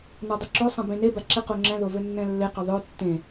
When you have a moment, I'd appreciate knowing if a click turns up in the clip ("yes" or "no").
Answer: yes